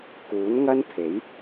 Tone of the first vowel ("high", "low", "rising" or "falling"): rising